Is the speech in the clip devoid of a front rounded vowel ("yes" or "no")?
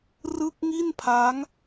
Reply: yes